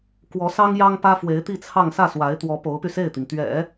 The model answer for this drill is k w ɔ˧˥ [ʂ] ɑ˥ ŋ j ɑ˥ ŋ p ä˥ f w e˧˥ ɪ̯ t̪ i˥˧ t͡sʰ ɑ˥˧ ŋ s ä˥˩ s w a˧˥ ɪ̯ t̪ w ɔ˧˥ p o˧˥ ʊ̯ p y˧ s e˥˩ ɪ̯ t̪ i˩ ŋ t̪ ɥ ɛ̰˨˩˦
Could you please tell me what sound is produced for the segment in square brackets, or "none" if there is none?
s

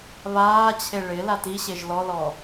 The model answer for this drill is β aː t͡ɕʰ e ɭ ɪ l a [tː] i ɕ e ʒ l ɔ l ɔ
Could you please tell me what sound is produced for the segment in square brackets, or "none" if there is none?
t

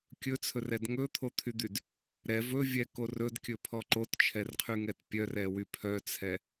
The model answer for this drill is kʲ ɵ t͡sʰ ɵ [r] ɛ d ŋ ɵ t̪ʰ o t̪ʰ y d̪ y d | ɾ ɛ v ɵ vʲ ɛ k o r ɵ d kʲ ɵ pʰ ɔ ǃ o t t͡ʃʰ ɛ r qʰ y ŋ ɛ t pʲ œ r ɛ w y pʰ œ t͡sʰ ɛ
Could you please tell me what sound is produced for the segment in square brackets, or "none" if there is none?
r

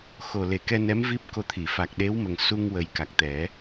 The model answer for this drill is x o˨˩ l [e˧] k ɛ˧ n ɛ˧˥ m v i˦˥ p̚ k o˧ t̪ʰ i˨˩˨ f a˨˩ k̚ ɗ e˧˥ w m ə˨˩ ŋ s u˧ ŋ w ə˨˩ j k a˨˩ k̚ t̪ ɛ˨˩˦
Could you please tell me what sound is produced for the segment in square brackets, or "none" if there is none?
e˨˩˦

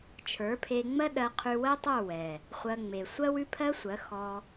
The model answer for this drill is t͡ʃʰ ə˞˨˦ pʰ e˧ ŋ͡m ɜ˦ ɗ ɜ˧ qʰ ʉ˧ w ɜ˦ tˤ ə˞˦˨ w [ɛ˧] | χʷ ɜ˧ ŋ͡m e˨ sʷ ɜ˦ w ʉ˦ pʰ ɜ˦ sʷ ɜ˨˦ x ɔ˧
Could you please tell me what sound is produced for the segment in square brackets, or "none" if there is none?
ɛ˨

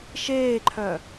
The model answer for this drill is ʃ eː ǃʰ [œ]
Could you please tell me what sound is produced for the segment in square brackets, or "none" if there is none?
œ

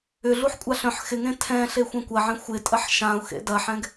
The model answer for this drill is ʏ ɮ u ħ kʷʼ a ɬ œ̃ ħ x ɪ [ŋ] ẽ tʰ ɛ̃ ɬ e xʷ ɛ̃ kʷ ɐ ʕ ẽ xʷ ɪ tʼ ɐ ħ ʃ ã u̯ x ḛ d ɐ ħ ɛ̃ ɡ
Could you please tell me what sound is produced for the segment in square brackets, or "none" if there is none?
ŋ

